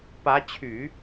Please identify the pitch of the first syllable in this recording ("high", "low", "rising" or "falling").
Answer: rising